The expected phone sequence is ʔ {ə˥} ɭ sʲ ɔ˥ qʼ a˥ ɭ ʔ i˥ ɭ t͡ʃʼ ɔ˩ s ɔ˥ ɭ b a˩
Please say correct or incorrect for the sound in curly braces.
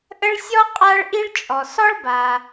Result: correct